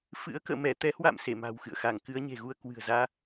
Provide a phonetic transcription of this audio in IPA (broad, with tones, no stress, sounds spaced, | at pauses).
f ɨ̰˧˥ ə̯ k ə̰ː˧˨ m ɛ˧˩ t̪ ɛ˧ h w a̰˧˨ m s e˧˩ m a̤˨˩ w x ɨ̰˧˨ ə̯ x a˧˩ ŋ k ɨ˨˦ ə̯ ɲ e̤˨˩ ɣ u˧ ə̯ k w ɨ̤˨˩ ə̯ z aː˧